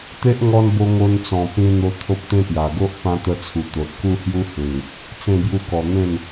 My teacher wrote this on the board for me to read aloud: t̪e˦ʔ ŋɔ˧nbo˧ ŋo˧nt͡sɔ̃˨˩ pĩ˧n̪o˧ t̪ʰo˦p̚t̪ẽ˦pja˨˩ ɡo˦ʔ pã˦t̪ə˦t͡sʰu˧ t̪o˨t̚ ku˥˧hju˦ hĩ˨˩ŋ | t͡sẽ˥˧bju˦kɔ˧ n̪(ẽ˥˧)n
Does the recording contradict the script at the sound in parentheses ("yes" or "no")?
no